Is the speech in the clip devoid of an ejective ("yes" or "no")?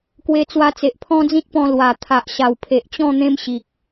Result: yes